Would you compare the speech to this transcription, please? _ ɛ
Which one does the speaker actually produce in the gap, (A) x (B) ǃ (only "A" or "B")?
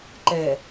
B